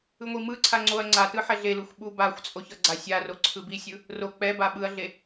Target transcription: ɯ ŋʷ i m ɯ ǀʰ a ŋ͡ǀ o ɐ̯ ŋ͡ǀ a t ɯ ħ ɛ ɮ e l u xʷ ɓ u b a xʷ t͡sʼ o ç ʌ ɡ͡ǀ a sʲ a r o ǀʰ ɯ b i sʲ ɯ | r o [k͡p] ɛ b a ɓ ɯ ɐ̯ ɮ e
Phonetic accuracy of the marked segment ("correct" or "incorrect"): correct